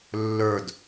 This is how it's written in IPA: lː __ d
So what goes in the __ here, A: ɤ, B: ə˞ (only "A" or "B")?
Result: B